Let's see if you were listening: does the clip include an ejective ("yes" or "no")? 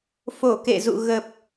no